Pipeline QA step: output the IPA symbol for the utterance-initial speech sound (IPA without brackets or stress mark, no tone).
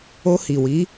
o